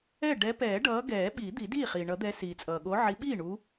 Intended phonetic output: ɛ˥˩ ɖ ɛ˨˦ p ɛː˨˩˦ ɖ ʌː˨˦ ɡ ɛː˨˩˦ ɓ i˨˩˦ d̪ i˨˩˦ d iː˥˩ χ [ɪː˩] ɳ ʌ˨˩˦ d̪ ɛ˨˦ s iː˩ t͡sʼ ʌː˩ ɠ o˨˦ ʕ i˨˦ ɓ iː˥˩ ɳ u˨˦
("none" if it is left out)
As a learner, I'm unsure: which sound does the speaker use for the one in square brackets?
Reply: iː˩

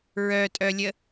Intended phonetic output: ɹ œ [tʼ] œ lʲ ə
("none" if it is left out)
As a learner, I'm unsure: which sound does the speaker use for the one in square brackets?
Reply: tʼ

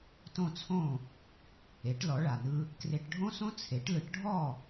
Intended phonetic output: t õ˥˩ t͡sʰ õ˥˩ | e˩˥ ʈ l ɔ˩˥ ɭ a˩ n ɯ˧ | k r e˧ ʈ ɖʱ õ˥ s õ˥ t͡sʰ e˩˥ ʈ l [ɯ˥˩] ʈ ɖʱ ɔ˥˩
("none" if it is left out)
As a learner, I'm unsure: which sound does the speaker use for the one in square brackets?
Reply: ɯ˩˥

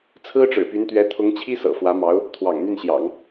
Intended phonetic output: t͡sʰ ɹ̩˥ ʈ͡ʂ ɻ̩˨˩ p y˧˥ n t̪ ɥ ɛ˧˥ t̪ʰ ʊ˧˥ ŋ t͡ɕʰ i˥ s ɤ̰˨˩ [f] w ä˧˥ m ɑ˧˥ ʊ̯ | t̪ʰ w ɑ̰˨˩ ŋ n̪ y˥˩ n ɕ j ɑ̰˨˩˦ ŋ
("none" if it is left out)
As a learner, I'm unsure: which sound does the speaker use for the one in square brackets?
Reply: f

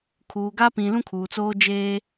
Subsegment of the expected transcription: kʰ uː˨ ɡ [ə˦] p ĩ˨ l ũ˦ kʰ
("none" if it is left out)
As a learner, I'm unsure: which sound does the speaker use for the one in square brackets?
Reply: a˦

